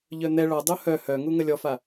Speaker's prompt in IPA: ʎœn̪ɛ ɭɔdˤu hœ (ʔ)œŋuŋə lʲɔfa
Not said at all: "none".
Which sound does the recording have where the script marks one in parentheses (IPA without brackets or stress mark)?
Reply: h